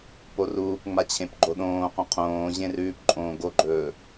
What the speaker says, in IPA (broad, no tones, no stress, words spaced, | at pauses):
poruːp ŋ͡mat͡ɕʰẽpɡ͡ǃoɗõː qũqʰõː ʑẽrʉːp ǃʼõːɡoɡ͡ǃɵː